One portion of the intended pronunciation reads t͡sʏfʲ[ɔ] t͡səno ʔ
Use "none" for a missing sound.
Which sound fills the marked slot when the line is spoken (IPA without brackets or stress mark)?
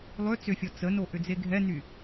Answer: ɔ